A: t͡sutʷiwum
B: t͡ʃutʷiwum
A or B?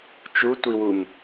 B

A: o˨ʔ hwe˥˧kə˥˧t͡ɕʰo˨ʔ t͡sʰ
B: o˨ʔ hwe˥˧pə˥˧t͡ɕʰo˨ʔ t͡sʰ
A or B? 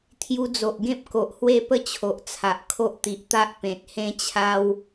B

